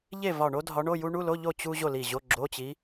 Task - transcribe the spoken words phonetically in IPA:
ʎe˥˨vɒ˧˩ɳo˥ dʱɒ˧˥ɳo˧˥˧ju˥ ɳu˧˥˧lo˧˥˧ʎo˥˨ t͡ɕu˥ ʑo˥˨li˧˩ʑo˧˥˧ ɡ͡ǁo˧˥˧t͡ɕi˧˥

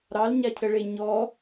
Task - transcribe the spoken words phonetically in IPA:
ɾɑlɲacʰəɭe ɲɔ

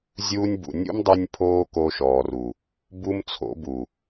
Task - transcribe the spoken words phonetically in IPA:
zʲuː˧nʲbṵ˨nʲṵ˦mdˤy˧nʲ pʰoː˦ko˧ʃɔː˨ru˨ | bu˦mt͡sʰo̰˨˦bu˨

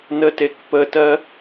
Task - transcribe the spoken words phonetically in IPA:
nətekpətɜ

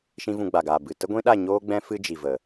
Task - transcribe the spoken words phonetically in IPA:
ʃĩ˦vũ˧ ɡ͡ba˨ɡaː˨ bɨ˨tə˦ɡʷĩ˦ɗa˦˨ ɲoː˦ɡ͡bɛ̃˦ fɨ˦d͡ʒi˨və˨

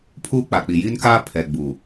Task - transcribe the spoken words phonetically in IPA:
pʰuː˦k͡pa˨k͡pi˨ ji˦nkaː˦ pʰɛ˨ɡ͡bu˨

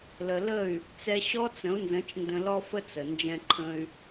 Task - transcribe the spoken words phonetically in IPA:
lə˨lə˦˨y̯ | t͡sɛ˧ɕɔ˦t͡sə̃˨˦u̯nzə̃˨˦t͡ʃ ndə̃˧lɔ˦fə˦ t͡sə˨ nd͡ʒɛ̃˧ǃʰə̃˧y̯

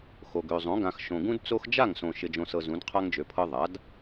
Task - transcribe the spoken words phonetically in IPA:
xo˨ɡø˨zˤõ˩˥ ɡã˨x ʃõ˨ɡũ˦d t͡so˦x d͡ʒa˥˩ŋsõ˨ ʃɪ˨d͡ʒõ˨sɤ˨ zũ˩˥dqʰa˦ŋd͡ʒø˩˥pʰɤ˦ ðˤa˩˥d

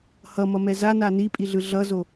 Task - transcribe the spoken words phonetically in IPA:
hʌmʌmɛ zana nipʼiɮɯ ɮʌzo

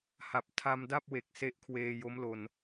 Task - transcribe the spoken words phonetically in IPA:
ha˨˩p̚tʰa˧mda˥˩p̚we˨˩k̚ se˦˥ʔkʰweː˧jo˦˥m lo˧n

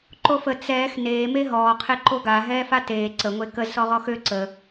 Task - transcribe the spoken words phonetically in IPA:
ǃofə t͡sɛːx neːme ɦɔːqʰe ǃoɡa ɦɛːfateː ǀəŋʷe kəzsɔ ʁɔxø ǀə

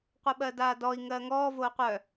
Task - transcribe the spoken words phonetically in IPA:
qʷɤɓɜdaːdɔi̯ ŋɜːŋɔː voːqʷœ

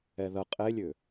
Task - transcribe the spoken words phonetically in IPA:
ɛðə qʼelʲʏ

